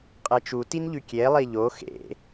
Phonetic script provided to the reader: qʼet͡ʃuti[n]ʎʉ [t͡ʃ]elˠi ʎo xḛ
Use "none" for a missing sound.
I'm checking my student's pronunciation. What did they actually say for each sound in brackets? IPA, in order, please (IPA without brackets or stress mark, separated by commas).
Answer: n, kʲ